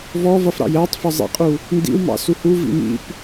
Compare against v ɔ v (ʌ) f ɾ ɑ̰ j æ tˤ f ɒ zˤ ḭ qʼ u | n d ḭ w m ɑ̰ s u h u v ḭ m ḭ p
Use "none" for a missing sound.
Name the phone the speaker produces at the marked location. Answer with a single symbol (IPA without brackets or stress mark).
ʌ